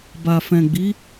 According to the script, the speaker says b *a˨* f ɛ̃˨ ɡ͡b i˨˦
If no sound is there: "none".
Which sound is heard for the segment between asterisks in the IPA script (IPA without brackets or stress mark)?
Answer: a˨